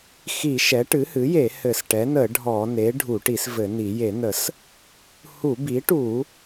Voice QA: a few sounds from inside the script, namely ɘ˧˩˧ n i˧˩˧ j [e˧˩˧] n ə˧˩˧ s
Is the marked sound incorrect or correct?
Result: correct